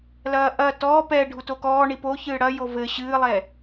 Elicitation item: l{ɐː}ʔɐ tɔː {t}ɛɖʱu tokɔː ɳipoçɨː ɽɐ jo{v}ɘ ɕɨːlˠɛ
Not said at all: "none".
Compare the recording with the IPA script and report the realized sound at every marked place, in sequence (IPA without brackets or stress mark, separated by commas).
ɐː, p, v